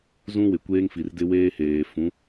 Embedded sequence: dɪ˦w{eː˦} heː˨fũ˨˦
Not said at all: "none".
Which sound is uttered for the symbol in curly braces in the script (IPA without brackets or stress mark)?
eː˦